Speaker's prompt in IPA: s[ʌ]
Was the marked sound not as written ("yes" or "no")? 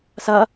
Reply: no